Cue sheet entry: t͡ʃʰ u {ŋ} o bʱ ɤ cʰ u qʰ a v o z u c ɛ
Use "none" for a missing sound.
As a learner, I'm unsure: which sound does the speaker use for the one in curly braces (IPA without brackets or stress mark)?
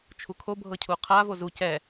kʰ